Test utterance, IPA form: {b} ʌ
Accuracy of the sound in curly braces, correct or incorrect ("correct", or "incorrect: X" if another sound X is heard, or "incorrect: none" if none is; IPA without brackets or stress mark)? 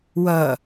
incorrect: w